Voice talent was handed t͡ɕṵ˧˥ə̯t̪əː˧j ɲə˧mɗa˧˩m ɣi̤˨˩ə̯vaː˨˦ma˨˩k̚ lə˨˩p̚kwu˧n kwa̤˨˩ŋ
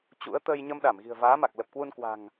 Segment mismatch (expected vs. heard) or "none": none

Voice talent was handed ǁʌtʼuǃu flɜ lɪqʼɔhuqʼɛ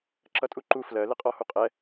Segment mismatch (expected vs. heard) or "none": none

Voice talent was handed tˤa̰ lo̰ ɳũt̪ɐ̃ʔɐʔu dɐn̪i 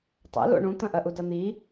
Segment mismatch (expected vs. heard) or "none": none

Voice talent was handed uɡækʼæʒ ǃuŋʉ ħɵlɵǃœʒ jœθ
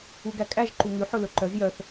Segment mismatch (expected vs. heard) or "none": none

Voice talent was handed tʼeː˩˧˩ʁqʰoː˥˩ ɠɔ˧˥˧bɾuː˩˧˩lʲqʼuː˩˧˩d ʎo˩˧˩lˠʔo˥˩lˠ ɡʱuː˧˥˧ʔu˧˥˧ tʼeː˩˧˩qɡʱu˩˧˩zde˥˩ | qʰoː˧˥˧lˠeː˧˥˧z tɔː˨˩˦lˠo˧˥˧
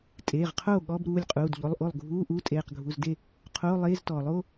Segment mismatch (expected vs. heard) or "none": none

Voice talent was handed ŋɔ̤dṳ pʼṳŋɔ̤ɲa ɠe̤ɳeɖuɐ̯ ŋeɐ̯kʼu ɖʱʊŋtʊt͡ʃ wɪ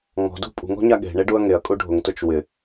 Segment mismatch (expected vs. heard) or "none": none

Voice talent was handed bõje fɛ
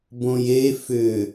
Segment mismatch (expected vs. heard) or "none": ɛ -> ʏ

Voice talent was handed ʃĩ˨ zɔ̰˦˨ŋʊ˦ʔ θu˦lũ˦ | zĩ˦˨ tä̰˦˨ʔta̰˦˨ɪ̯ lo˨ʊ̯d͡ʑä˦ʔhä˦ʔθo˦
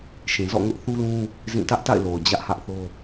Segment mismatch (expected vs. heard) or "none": ä̰˦˨ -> ä˦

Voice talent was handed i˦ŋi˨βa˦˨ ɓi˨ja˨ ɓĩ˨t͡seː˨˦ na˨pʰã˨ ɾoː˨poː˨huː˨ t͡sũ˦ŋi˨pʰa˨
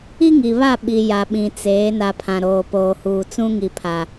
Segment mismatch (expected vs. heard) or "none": none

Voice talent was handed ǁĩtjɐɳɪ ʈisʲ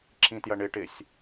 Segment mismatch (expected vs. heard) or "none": i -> ɪ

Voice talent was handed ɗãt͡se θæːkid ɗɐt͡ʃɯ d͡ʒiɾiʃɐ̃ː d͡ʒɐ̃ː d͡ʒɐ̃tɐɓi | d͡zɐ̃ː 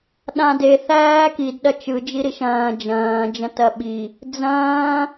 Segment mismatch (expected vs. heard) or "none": t͡s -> d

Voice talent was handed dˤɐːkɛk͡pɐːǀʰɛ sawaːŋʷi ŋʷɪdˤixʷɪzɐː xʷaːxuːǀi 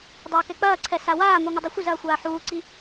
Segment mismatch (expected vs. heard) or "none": x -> ħ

